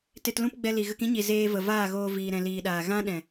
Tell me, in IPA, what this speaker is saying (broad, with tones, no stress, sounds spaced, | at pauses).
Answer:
t e˧ t l ũ˦ p ɡ͡b ɛ˧ l i˨ ɣ ə˧ k ĩ˦ ɲ i˨ z eː˧ v ə˨ v aː˦˨ ɣ oː˧ v iː˧ ɾ ɛ̃˧ l iː˧ ɗ aː˨ ɣ ã˦ ɗ ɛ̃˨